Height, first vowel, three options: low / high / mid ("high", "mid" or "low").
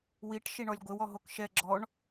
high